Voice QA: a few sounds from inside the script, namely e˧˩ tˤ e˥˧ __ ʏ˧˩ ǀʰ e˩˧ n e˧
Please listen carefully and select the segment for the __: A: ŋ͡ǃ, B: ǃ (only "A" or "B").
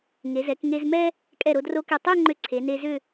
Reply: A